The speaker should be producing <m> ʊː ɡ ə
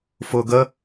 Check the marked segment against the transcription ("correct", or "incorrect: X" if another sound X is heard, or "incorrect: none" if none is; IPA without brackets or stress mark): incorrect: f